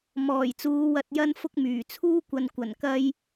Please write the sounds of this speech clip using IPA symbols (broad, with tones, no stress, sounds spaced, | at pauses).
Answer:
m ɔː˨˩ j t͡s uː˨˧ w ɐ˨ t̚ j ɐ˧ n f ʊ˧ k̚ m yː˨˩ t͡sʰ uː˥ kʷ ɐ˧ n kʷ ɐ˨˩ n k ɐ˧ j